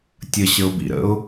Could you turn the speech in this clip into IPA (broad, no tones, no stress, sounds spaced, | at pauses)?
tʲ ə ɕ ə ʊ̯ b ḭ ɾ ə̰ ʊ̯